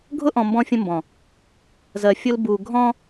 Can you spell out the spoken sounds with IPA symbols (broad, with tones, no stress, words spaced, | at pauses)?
ɡʱʊ˦ʔɔ̃˨ mbɔ̃˦fʲə̃˦ mbɔ̃˨ | zɜ˨ fʲʊ˦lbu˨ ɡʱɔ̃˦